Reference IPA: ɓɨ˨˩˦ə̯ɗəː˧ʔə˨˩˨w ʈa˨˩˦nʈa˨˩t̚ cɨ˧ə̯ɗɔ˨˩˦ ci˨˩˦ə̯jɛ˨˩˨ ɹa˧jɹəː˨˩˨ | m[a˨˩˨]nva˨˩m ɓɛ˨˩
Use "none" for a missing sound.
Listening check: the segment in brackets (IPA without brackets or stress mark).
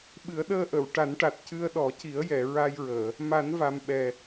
a˨˩˦